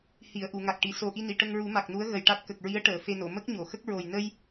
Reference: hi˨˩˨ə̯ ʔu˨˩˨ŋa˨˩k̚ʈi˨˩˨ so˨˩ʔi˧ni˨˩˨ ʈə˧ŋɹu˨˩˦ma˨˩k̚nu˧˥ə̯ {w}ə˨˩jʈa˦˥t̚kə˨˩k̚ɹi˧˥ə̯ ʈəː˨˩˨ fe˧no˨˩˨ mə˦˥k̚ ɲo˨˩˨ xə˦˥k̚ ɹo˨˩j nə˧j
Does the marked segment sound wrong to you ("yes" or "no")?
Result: yes